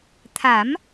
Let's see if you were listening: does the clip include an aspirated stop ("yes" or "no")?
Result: yes